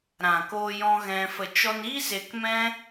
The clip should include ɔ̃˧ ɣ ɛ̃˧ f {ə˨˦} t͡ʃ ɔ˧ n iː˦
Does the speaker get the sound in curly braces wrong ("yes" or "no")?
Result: yes